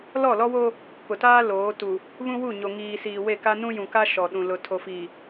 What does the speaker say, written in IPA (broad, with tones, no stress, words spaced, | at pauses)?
lɔ˦˨lɔ˦wo˦ | pʊ˨taː˦ loː˨˦ tu˨ | βũ˦wu˦˨ ɲo˨ŋiː˨siː˨ we˦˨ka˦ nũ˦jũ˨ka˦ ʃɔ˨ɗũ˨ lʊ˨ tʰo˨fiː˨